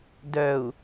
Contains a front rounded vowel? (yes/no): yes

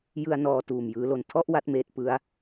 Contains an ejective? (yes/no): no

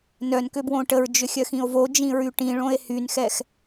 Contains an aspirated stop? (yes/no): no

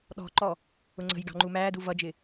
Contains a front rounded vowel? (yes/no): no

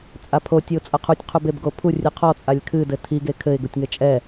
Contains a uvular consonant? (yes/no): yes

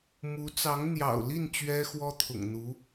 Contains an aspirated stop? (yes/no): yes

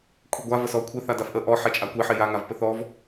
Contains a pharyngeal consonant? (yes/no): yes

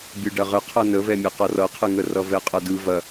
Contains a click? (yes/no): no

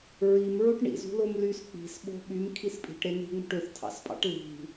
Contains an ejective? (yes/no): yes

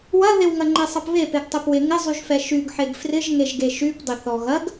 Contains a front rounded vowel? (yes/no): yes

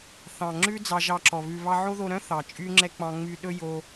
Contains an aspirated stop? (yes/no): no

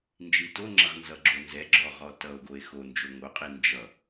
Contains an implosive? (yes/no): no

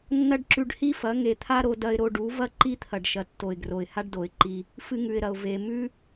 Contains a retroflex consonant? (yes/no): yes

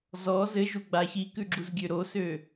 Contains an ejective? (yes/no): no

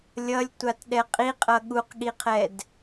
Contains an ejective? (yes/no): yes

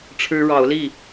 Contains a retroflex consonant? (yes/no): yes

